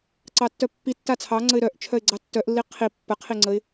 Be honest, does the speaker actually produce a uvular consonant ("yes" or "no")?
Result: yes